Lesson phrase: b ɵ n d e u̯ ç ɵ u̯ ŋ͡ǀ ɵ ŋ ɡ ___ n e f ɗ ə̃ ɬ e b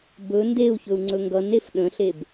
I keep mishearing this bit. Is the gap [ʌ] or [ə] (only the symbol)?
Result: ʌ